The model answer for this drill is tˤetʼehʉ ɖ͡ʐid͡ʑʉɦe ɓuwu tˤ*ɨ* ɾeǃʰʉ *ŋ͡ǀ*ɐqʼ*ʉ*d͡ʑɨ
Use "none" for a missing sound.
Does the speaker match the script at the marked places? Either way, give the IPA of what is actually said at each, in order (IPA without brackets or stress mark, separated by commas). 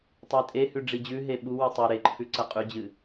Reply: ɨ, ǀ, ʉ